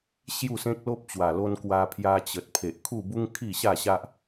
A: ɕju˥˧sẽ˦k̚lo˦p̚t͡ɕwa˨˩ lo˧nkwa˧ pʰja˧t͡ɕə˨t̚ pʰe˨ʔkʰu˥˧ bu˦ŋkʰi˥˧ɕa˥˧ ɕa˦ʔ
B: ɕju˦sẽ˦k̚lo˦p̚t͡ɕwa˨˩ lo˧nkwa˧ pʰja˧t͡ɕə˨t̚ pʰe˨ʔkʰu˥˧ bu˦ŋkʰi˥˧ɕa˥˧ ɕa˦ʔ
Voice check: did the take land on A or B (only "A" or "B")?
A